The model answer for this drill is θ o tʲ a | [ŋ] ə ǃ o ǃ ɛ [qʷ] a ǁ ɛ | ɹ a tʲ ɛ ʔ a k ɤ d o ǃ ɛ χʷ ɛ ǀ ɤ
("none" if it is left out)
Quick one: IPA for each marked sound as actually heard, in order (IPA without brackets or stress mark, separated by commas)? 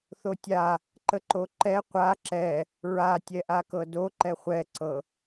ǃ, qʷ